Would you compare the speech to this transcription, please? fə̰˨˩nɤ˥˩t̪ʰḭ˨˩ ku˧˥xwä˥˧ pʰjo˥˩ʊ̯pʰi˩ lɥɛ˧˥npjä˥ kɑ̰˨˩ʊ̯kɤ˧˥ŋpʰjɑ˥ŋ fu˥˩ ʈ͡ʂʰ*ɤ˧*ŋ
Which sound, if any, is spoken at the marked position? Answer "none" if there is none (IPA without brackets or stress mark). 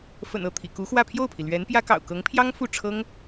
ɤ˥